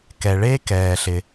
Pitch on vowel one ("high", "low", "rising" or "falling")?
low